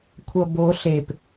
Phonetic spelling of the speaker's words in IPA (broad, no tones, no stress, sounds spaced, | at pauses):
kʷʰ ʌ b o ɬ e p